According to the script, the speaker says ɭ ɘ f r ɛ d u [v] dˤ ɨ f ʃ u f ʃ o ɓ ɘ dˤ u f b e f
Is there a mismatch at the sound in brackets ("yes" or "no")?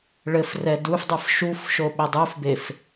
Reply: yes